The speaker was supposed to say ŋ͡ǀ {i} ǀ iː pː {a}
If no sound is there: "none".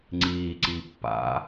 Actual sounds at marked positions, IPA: iː, a̰

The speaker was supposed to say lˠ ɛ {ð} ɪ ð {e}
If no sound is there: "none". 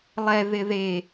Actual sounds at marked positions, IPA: ð, e

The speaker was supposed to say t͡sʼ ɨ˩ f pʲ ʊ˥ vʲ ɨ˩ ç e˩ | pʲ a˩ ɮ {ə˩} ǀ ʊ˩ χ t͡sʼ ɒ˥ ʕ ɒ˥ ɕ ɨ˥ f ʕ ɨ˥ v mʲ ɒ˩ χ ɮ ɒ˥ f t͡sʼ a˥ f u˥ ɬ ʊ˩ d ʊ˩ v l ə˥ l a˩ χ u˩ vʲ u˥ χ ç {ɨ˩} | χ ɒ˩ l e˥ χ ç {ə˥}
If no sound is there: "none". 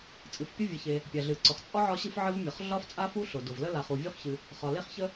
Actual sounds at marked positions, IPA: ɨ˩, ɨ˩, ə˥

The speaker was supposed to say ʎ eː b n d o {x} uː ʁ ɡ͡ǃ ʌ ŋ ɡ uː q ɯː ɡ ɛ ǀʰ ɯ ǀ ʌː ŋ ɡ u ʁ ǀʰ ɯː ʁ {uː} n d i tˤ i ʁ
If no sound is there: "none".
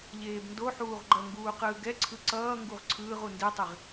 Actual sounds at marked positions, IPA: ħ, u

